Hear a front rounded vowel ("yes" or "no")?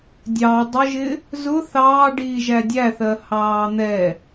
no